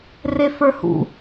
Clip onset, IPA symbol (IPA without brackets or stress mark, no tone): r